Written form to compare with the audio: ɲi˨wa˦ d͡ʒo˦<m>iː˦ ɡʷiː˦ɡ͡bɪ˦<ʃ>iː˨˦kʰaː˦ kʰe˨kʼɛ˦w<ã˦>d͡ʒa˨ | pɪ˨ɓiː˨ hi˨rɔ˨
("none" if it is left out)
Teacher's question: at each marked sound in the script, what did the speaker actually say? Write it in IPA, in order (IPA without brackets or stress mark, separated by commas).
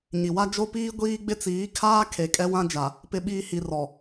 p, t͡s, ã˦